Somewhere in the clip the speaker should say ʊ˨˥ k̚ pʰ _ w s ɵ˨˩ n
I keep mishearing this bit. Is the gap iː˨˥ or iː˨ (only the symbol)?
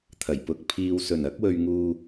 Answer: iː˨